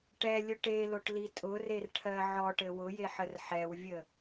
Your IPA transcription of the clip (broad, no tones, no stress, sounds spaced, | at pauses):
ʈ ɛ lʲ ɵ ʈ e l o ʈ l i tʼ ʊ r e r ʈʰ ɜ ʕ ɔ ʈ ɘ w ʊ j e ħ ə r ħ ɛ w vʲ ə